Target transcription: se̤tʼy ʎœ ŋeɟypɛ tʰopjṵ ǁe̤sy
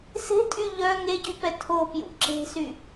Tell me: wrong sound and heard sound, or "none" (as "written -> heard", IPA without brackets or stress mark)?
none